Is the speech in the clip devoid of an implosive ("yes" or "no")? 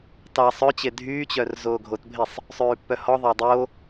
yes